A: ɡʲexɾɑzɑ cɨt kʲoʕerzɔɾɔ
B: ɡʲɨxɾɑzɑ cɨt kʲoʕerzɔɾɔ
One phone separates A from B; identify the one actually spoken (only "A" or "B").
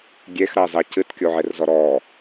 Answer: A